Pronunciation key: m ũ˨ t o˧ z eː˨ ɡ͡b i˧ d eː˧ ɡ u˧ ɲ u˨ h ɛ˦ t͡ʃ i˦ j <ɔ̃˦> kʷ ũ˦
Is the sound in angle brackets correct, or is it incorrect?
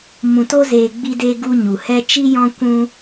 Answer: correct